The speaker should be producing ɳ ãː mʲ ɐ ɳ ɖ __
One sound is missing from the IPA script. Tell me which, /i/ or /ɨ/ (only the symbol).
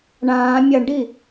i